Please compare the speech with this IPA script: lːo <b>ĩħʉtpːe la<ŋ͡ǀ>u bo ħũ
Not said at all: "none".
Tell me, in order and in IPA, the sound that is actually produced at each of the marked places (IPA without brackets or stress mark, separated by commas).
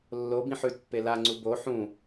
b, ŋ͡ǀ